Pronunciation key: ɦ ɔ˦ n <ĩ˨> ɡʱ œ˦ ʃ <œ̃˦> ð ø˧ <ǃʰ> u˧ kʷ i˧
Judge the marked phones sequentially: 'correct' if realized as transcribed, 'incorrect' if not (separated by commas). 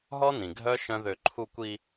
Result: correct, correct, correct